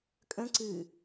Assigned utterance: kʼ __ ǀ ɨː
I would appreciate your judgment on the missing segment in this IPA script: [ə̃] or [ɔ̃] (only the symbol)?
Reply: ə̃